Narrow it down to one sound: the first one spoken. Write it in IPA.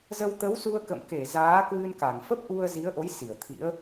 z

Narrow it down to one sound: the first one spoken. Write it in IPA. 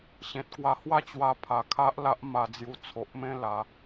ɕ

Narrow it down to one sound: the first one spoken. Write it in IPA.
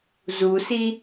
z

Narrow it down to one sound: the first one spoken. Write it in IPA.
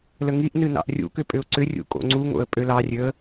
l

